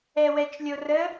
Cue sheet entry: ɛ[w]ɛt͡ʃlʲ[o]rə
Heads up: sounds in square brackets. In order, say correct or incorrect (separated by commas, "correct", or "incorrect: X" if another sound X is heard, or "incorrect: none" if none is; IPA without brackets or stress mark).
correct, correct